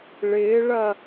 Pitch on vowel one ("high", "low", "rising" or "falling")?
rising